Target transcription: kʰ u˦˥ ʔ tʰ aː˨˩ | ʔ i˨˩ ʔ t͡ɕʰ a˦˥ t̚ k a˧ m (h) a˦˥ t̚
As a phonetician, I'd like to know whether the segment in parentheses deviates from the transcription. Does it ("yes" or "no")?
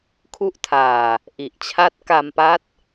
yes